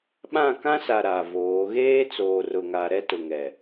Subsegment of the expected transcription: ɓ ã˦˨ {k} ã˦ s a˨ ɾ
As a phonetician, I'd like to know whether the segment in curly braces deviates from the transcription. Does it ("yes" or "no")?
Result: no